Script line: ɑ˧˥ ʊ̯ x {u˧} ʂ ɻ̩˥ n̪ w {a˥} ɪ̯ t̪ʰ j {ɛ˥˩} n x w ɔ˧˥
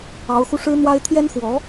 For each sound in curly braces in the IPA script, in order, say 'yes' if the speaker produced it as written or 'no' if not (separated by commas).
yes, yes, no